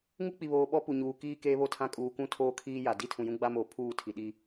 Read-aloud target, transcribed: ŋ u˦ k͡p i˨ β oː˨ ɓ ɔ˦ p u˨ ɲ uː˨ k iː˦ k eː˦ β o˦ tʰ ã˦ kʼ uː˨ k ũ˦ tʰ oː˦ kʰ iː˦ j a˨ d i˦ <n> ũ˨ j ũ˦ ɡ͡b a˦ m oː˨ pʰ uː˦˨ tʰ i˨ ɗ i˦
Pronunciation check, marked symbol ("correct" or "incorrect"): incorrect